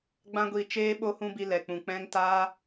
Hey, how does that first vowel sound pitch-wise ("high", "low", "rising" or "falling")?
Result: high